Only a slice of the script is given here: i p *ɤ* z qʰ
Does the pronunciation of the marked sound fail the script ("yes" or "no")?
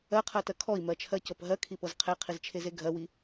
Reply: no